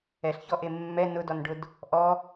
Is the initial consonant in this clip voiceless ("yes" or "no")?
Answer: yes